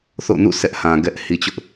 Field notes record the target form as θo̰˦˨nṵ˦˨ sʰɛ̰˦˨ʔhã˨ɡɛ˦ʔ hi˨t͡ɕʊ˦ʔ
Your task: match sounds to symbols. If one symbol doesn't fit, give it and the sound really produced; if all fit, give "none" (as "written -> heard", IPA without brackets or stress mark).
ɛ̰˦˨ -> ɛ˦